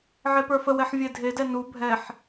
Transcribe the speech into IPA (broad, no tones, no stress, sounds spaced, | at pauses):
ʕ e p ə˞ f ə w ɛ ħ vʲ e dʱ e d ɛ n u bʱ ɛ ħ